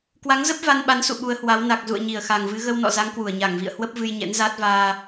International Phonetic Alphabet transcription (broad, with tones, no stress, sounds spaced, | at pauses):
k w a˨˦ ŋ z ə˦˥ p̚ v a˧ n ɓ a˨˦ n s ṵ˧˨ ɓ u˨˦ ə̯ h w a˨˦ w n a˨˩ k̚ z ṵ˧˨ ə̯ ɲ i˧˩ ə̯ x a˨˩ ŋ v ɨ˨˦ ɣ ə˧ w n ɔ̰˧˨ z a˨˦ ŋ k w u˧˩ ə̯ ɲ a˧˩ ŋ v ḭ˧˨ ə̯ h w ə˦˥ p̚ v ɨ˧ j ɲ ɛ̰˧˥ n z aː˦˥ t̚ v aː˧